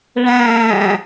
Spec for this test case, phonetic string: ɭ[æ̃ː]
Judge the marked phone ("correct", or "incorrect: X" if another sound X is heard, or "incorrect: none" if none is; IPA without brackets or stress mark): correct